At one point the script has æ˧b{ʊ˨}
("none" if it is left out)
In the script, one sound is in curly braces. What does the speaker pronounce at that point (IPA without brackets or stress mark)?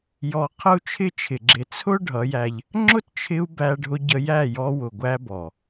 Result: ɔ˨